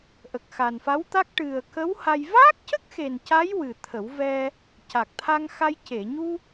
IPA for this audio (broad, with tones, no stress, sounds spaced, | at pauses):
ʔ ə˨˩ k̚ x a˨˩ n f a˧˥ w t̪ a˦˥ k̚ ʈ ɨ˨˩ ə̯ k ə˧˥ w h a˧ j v aː˦˥ k̚ c ə˦˥ k̚ x e˨˩ n c a˧˥ j w ɨ˨˩ t̪ʰ ə˨˩˦ w v ɛ˧ | c a˨˩ k̚ t̪ʰ a˧ ŋ x a˧ j c e˨˩˨ ɲ u˧